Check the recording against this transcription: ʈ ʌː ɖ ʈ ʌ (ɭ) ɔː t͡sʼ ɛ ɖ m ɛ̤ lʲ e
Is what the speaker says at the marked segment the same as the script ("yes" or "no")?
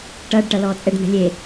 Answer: no